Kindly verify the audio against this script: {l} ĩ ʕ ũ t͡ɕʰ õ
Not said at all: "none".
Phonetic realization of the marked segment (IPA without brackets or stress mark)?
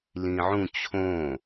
l